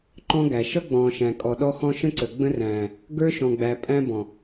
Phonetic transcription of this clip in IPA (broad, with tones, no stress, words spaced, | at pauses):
ǃɔ̃˦ɡæ˨ ʃʌ˦ɡ͡bɔ̃ː˨ʃæ̃˨kʼɔ˨ ɗɔ˦xɔ̃˦ ʃə̃˦ǀə˨ ɡ͡bə̃˦ræ̃ː˨ | ɡə˞˦ʃɔ̃˨ɡ͡bæ˨ pʼæ̃˦bɔ̃˨